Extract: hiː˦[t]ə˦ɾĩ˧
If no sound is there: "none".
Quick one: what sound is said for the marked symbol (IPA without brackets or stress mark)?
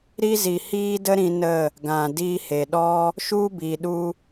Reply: d